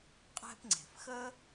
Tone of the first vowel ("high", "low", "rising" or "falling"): high